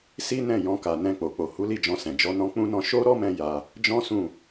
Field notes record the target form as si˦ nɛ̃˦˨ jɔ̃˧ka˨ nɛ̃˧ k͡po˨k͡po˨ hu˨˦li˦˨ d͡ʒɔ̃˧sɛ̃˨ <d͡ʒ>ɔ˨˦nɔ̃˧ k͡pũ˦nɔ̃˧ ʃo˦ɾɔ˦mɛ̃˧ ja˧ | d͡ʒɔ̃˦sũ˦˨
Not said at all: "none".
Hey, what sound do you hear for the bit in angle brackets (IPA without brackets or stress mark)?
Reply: d͡ʒ